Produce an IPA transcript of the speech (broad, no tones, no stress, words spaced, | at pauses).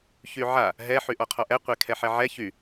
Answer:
çyʕa | ɦɛ ħyʔɔqʰɔʔɛ qʷekʰɛħɛʕɛ çy